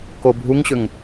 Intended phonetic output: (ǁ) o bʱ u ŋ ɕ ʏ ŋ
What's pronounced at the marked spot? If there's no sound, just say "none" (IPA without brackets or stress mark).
k